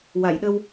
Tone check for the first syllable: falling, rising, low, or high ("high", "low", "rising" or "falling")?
low